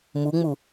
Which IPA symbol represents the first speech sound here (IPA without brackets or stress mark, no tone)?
m